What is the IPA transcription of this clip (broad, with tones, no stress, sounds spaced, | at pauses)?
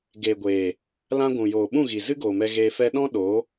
ɡ eː˨ ɡʷ eː˨ | l ã˧ ɡʷ ũ˨ j oː˨ ɓ ũ˦˨ ɣ i˨ z ɨ˦ ɡ oː˨ m ɛ˧ ɣ eː˧ f ɛ˧ ɗ ɔ̃˦ ɗ o˨˦